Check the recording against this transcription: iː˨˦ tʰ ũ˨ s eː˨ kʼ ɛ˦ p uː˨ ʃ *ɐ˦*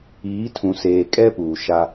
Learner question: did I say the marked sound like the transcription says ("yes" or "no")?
no